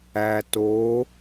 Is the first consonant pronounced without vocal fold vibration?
yes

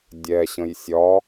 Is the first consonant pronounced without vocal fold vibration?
no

